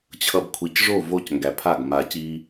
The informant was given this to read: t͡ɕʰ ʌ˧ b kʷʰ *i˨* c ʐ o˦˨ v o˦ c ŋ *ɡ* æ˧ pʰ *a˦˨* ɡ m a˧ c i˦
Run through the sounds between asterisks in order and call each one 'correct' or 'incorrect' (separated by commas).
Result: incorrect, correct, correct